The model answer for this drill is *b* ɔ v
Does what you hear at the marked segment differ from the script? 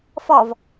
yes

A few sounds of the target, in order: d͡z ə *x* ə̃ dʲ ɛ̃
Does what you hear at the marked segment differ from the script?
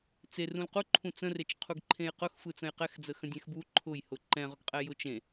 no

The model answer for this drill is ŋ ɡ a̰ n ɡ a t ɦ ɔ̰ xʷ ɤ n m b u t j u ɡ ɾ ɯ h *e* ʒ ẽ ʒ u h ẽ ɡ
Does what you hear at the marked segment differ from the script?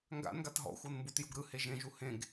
no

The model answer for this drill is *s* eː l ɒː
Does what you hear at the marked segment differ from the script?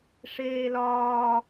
yes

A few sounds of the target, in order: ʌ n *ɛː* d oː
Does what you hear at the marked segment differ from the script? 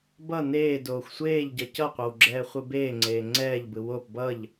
yes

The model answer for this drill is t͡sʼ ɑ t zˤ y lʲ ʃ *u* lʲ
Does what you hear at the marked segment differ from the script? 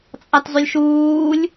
yes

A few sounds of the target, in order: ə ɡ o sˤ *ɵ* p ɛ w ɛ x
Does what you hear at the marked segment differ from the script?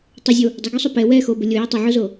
yes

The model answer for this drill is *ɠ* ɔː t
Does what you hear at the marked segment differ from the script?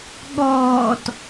no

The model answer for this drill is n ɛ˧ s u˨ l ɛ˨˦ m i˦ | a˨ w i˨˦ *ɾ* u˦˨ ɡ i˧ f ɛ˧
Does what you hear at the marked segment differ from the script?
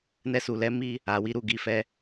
no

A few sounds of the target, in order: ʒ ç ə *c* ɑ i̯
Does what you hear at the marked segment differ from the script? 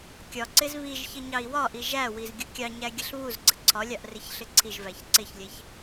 yes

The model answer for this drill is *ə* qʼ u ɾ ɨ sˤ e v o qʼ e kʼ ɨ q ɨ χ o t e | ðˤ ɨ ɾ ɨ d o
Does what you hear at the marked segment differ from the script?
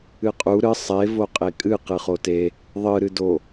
yes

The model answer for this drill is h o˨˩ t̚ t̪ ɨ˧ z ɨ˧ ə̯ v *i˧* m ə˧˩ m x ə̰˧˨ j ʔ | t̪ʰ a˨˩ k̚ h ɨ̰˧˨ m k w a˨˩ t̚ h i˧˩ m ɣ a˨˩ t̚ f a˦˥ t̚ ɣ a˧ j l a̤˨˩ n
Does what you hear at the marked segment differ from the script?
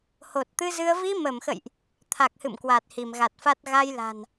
no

